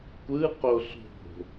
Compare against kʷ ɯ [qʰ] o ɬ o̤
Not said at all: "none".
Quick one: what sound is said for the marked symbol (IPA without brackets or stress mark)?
q